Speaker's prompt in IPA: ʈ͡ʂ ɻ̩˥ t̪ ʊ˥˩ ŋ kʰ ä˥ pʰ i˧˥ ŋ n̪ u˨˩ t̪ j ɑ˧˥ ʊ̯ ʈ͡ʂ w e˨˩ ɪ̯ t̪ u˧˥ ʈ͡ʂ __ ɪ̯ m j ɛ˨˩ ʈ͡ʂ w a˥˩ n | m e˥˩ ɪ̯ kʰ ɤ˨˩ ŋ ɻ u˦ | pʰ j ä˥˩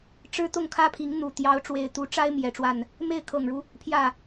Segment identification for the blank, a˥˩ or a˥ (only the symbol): a˥